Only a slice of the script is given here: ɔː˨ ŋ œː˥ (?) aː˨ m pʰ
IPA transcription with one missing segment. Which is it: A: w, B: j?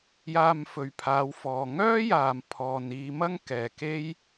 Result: B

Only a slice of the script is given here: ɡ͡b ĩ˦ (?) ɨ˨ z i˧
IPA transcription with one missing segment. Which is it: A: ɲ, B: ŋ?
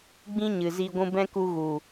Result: A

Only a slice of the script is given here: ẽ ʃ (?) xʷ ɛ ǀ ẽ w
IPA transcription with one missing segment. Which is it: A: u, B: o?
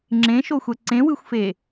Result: B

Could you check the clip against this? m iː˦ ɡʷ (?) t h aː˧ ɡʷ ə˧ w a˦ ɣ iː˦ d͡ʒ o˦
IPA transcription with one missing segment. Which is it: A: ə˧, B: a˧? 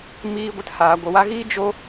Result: A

